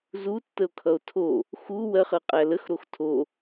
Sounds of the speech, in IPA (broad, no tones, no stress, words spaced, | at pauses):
zutːəo̯kʰʌo̯ tʰo | xu wɜχɜqʼæ ləxɾox tʰo